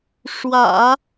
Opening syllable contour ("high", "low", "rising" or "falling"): low